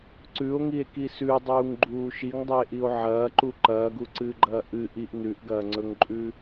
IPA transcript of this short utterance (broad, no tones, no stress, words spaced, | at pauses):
ǀʉo̯ŋie̯ki sʉdˤuːŋɡ͡ǃuː ʃiŋdˤɵe̯ʔio̯ ʕɐːǃu ǃɐːɡuǀɨːɡ͡ǃɐː ʔɨ ʔiʔ nʉʔɡɐːŋ͡ǀɵŋǃʼʉ